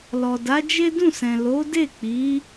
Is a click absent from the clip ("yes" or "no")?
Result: yes